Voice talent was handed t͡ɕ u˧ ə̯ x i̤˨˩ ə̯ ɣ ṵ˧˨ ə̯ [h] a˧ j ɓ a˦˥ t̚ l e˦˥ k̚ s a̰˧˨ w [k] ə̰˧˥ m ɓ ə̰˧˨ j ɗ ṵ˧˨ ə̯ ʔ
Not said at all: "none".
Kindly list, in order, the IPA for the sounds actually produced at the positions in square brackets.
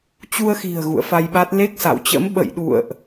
f, t͡ɕ

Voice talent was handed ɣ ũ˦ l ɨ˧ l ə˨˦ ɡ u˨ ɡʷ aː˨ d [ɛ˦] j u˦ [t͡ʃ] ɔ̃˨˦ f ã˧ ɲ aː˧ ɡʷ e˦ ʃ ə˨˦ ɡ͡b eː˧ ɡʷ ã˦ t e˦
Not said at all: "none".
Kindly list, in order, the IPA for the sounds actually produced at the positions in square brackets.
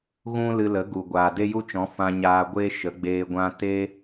e˦, t͡ʃ

